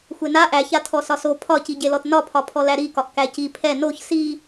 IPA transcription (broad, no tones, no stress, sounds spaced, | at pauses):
xʷ e n a ʔ æ ç a tʰ ɔ s ɒ s o pʰ ɒ c i ɟ e l ɔ t n ɒ pʰ ɒ pʰ ɔ l æ ɾ i k ɒ ʔ k æ c i pʰ ɛ n o ç s i